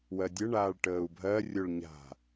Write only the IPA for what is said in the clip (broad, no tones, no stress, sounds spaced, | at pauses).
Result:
w ɜ dʲ ə ɳ aː ɭ ʈ əː u̯ bʱ ɜ rʲ o ɭ ɲ a̤